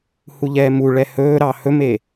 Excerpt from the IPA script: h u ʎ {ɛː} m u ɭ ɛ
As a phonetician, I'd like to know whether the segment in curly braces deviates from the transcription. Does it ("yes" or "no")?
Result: no